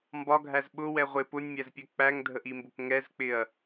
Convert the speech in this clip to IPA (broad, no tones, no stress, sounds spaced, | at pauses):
m b ɒ ɡʱ æ z ɓ ʊ w ɛ ʁʷ ɪ p ʊ nʲ mʲ æ z pʲ ɛ k͡p æ ŋ dʱ ə ʔ i m b ʊ k ŋ ɛ z k͡p ɪ ɐ̯